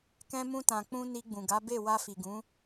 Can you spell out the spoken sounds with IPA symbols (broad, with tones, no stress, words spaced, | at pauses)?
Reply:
kɛ̃˧mũ˧tã˨k͡pũ˧ ni˧ ɡ͡bũ˨ɡa˨˦ be˦˨ wa˧fi˨ɡũ˨˦